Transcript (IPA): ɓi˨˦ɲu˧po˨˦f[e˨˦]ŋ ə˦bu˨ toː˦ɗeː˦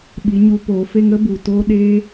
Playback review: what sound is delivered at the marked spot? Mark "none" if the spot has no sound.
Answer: e˦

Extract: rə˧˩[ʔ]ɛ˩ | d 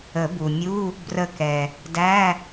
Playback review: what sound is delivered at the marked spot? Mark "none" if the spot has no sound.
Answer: k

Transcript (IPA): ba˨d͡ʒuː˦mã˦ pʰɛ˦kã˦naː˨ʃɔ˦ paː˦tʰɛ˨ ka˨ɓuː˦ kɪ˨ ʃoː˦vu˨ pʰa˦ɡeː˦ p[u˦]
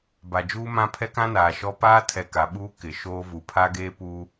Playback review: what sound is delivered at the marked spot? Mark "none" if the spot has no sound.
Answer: u˦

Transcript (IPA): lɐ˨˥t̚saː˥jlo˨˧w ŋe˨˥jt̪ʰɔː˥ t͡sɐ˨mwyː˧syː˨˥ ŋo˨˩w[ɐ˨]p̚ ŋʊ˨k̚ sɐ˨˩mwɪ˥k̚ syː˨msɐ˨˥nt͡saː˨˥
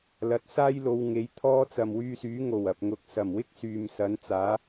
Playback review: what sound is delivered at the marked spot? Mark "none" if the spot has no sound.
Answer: ɐ˨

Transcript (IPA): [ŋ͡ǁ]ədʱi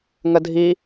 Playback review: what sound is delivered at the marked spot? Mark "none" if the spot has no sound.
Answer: ŋ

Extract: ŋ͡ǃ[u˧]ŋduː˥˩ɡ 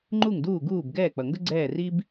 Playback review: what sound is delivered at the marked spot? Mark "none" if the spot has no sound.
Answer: u˥˩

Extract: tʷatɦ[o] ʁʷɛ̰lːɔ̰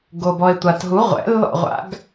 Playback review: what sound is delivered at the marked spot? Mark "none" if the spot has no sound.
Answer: u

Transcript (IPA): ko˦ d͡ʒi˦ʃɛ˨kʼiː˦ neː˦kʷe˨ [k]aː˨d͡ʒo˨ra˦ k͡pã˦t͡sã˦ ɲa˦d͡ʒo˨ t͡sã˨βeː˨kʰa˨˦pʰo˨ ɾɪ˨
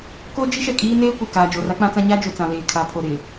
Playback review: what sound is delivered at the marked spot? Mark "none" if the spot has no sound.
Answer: k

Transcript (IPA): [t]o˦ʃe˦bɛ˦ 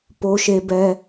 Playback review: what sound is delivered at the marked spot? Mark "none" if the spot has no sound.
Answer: p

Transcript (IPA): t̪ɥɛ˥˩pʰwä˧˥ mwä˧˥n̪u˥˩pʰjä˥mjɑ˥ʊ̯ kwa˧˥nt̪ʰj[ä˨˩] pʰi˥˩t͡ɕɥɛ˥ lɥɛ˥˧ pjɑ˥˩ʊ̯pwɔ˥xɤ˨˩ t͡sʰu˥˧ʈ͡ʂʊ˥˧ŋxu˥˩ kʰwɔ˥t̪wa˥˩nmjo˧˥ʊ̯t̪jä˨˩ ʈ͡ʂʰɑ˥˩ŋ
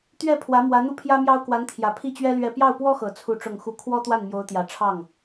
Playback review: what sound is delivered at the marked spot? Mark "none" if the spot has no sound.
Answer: ä˨˩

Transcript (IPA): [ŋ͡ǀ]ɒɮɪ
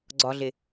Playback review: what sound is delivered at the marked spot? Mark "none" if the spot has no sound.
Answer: ɡ͡ǀ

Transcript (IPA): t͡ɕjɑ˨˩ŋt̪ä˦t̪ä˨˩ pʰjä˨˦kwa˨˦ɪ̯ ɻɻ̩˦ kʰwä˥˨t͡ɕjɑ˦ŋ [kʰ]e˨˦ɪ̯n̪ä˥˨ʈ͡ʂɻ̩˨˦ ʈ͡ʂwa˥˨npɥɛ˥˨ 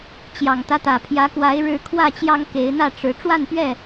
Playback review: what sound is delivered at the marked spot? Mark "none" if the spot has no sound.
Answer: k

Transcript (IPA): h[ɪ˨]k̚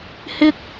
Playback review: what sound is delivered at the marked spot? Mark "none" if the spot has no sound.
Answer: ɪ˥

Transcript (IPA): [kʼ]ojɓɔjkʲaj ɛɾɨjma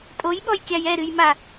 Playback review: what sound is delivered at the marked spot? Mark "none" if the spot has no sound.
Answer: tʼ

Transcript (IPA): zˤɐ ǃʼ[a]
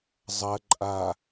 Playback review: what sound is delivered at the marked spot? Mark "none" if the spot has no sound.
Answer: a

